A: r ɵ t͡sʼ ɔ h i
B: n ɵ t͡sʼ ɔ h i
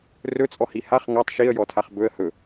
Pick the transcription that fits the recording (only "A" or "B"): A